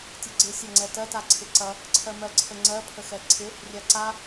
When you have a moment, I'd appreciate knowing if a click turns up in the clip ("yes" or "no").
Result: yes